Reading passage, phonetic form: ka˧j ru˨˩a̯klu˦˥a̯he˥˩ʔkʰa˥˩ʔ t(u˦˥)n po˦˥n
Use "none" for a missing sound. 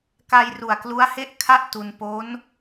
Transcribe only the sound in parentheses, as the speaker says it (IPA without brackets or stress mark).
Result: u˧